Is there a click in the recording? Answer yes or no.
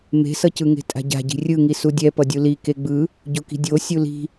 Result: no